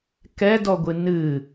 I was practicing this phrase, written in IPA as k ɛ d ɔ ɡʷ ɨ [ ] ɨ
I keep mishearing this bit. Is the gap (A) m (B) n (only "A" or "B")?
B